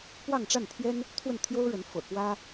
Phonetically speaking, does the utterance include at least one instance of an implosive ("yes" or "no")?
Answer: no